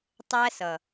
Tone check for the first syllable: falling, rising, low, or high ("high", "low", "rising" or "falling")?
high